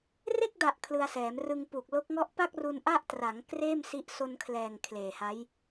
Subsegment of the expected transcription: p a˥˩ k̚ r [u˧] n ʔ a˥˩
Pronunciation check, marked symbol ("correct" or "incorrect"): correct